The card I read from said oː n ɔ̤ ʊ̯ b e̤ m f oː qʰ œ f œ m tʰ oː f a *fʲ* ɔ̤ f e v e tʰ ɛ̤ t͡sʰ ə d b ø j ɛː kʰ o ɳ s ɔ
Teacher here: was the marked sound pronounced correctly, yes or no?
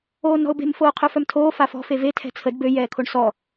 no